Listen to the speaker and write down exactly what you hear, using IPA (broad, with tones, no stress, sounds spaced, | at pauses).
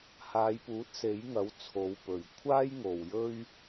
h aː˨˧ j p uː˨˥ t̚ s e˨˥ j ŋ ɐ˨˥ w t͡sʰ o˨˧ w p ɵ˨ ɥ kʷʰ aː˥ j ŋ o˨ w j ɵ˥ ɥ